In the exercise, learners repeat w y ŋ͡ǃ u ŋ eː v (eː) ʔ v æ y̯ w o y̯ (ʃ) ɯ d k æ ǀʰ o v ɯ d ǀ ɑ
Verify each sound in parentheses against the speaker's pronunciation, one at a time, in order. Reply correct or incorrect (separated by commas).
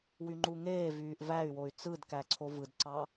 incorrect, incorrect